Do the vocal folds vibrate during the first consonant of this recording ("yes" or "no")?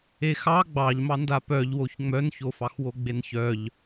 no